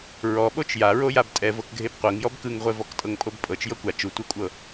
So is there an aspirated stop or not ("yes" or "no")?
no